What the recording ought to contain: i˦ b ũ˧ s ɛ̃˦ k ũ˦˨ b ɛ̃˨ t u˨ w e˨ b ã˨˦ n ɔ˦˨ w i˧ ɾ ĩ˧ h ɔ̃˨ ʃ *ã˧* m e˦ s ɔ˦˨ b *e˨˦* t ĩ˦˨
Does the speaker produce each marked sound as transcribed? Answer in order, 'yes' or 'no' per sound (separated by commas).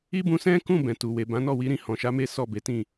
no, yes